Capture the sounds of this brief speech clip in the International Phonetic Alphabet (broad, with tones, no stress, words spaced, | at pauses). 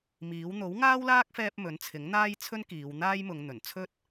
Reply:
miː˨˥w n̪o˨˥w ŋaː˥wlaː˥k̚fɛː˧p̚ mɵ˨˥nt͡sʰɪ˨˥ŋn̪aː˥j t͡sʰɵ˥nkiː˨˧w n̪aː˥jmʊ˨˧ŋ n̪ɵ˨˩n t͡sʰɵ˥t̚